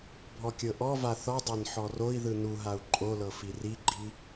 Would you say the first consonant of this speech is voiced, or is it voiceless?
voiced